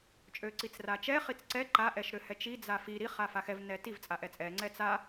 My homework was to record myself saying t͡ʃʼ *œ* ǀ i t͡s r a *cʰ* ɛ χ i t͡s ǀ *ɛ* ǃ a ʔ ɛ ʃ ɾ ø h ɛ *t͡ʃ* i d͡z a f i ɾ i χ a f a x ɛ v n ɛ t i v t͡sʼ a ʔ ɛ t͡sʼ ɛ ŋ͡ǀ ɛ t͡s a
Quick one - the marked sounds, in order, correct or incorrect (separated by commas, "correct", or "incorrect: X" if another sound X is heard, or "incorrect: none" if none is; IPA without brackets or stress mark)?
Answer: incorrect: ø, incorrect: t͡ʃ, correct, correct